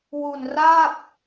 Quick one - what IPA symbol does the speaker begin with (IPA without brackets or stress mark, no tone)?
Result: w